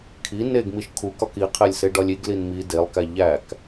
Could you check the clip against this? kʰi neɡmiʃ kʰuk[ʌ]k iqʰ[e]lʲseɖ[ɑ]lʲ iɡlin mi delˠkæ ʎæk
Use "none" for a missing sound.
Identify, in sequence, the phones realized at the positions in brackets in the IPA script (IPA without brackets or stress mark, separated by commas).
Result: ɒ, e, ɒ